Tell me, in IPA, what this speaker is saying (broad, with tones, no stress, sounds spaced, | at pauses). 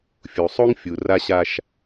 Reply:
fʲ u˨ sˤ o˦ ŋ fʲ u˨ r a˦ ɕ a˦ ʃ